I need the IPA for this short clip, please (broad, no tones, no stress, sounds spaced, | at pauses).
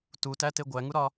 t u t æ t e ɡʷ æ ŋ u ɾ ɒ